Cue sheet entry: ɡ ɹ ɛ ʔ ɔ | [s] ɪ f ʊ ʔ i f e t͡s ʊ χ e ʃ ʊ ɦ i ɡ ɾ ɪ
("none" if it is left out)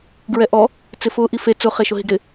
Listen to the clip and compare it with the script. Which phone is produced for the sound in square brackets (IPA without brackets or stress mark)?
t͡s